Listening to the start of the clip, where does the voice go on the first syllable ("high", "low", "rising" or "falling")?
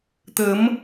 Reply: rising